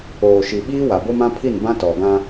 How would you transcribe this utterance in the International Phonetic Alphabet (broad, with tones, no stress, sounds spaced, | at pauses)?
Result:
oː˨ ʃ i˨ ɓ iː˦ w a˨ b o˦ m ã˦ pʰ i˦˨ n b ã˦ t ɔ˨ ɡ ã˦